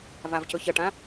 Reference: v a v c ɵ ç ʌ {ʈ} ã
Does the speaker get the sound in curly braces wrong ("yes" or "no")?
no